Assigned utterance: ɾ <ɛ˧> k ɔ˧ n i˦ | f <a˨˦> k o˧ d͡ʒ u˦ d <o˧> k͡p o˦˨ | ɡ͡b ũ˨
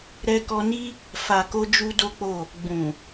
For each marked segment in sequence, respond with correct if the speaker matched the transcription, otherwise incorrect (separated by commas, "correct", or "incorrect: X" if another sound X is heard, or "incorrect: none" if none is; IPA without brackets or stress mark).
correct, incorrect: a˨, incorrect: o˦